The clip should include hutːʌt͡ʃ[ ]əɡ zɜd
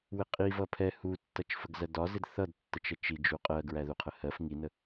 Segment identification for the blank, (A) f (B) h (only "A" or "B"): A